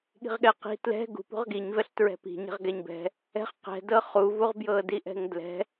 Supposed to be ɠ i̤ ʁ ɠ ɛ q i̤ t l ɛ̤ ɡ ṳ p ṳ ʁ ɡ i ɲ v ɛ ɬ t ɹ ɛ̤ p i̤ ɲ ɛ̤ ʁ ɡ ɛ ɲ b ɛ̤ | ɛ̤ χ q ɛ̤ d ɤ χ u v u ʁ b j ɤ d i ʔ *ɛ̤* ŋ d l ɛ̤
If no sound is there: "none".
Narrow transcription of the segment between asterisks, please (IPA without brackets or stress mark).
ɛ̤